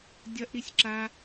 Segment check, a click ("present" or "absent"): present